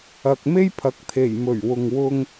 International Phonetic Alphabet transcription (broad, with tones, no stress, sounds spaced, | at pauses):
ɐ˨ k̚ m e˥ j pʰ ɐ˨ k̚ t̪ʰ e˨˩ j m ɵ˨˩ ɥ w ʊ˨ ŋ w ʊ˧ ŋ